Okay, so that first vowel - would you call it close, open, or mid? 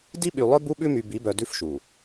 close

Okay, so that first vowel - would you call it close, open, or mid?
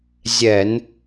mid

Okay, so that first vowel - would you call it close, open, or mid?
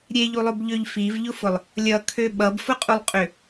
mid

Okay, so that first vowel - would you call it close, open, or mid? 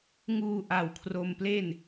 close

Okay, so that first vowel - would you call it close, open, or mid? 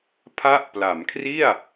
open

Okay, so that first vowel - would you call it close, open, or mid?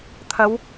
open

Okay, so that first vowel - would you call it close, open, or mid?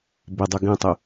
close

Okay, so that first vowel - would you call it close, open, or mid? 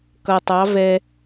mid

